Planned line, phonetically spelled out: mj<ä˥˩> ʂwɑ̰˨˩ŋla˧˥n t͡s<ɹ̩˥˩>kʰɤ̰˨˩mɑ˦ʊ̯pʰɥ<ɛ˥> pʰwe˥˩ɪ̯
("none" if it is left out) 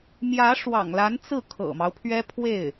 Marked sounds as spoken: ä˧˥, ɹ̩˥˩, ɛ˥

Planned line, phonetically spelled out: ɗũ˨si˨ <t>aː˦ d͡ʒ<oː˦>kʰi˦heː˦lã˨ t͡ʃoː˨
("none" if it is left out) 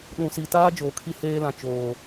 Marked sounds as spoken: t, oː˨

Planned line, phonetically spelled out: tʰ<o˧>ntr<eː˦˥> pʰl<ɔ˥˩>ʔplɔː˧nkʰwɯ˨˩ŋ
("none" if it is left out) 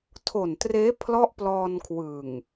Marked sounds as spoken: o˨˩, eː˦˥, ɔ˦˥

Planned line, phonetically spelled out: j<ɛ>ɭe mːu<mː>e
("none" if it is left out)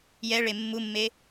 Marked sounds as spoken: ɛ, mː

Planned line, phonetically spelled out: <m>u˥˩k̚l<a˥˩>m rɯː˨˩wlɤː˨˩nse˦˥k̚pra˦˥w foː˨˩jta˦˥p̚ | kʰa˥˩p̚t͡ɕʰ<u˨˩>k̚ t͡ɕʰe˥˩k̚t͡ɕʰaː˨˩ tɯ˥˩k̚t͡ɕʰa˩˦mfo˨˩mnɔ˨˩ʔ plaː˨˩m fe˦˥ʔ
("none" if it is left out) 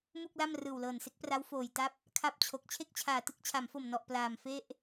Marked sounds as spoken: m, a˥˩, o˨˩

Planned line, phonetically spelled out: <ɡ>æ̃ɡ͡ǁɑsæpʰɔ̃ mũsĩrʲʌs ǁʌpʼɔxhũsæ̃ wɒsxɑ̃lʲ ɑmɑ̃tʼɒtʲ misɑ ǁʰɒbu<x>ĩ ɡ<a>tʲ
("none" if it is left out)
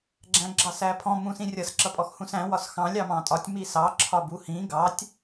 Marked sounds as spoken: ɡ͡ǁ, h, ɑ

